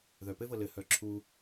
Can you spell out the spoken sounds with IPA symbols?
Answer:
ð œ p ɘ v ɤ l ɘ h œ ǁʰ u

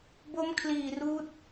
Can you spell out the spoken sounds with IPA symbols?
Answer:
b o˦˥ m kʰ l iː˨˩ r uː˦˥ t̚

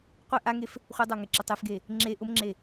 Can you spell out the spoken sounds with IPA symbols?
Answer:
qʷ e ʔ a ŋ e f | χʷ ə dˤ a ŋ ɛ ǁ ə tˤ e f ɡ e | ŋ͡ǁ e ʔ ʊ m ŋ͡ǁ e

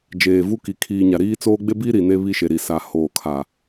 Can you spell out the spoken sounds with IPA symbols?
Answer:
d͡ʒ eː˨ v u˦ k i˨ kʰ iː˨ ɲ a˨ ɾ iː˦ t͡s oː˦ ɡ͡b e˦ b i˦ ɾ i˨ n e˦ β i˦ ʃ e˨ ɾ i˨ s a˨ h oː˨ kʰ a˨

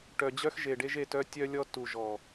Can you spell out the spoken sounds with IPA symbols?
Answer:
ʈ œ˨ d͡ʑ œ˦ x ʒ e˨ ɖ e˦ ʒ e˦˨ t œ˦ tʲ œ˦ lʲ ɔ˦ t u˨ ʒ ɔ˨

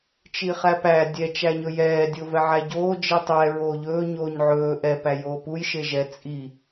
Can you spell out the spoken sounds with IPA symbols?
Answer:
t͡ʃ i χ æ p æ dʲ ɛ t͡ʃ æ ɲ ɵ j ɛː dʲ o v ɛ ʕ æ ɟ oː d͡ʒ i tˤ ɛ ɹ oː ʎ ɵː ɲ oː ɲ ʕ ɵː ʔ ɛ p æ j oː p u j ʃ e ʒ ɛ t͡sʼ i

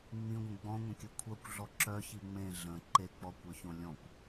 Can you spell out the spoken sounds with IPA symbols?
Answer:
ŋ͡m ĩ ɡʷ ə̃ ɡ͡b ɔ̃ ŋʷ ə̃ kʲ ɵ kʷʰ œ kʷ ɮ ɔ ǁ œ ç i ŋ͡m ẽ ɮ ə̃ ǃ e k͡p ɔ kʷ œ ç õ lʲ ɔ̃ kʷ

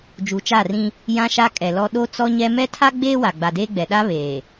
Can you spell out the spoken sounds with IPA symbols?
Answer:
d͡ʒ u˨ t͡ʃ aː˦˨ r ĩ˦ | j ã˦ ʃ a˦ kʼ ɛ˨ l ɔ˦ ɗ o˦ t͡s ɔ˦ ɲ ɛ˦ m ɛ˦ tʰ a˦ ɡ͡b eː˦ w a˨ ɡ͡b a˨ d eː˦ ɡ͡b ɛ˨ ɗ a˦ β eː˨

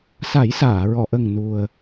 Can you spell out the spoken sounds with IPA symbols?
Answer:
s a˨˩˦ j s aː˨˩˨ ɹ ɔ˨˩˨ ʔ ə˨˩ ŋ n u˨˩ ə̯

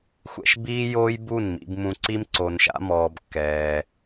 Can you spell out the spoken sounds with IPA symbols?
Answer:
xʷ ɛ̰˧ ʃ b iː˦ j oː˦ j b u˦˨ n m ḭ˧ b m ũ˧ ǀ i˦ m ǀ o˨ n ʃ a̰˧ m ɔː˨ b kː ɛː˧

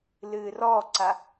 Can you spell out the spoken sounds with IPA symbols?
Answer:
l ɨː r ɔ ǀ a

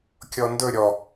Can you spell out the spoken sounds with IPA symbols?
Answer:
kʲ ɔ n d ɵ ɾʲ ɔ

